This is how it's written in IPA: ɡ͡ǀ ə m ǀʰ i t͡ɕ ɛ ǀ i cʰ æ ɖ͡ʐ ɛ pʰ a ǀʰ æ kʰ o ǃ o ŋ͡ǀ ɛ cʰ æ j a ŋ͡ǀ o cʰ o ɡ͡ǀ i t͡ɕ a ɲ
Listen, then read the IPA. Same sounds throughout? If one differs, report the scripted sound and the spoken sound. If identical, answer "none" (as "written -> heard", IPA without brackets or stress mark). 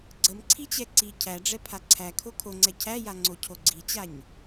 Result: ǃ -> kʰ